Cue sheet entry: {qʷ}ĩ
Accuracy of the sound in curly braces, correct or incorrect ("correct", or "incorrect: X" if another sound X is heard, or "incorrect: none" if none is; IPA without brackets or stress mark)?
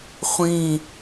incorrect: χʷ